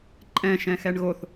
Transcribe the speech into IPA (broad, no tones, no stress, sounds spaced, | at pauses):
ǃʼ ɛ̃ ʃ ɛ̃ x ɛ ɳ ɣ o θ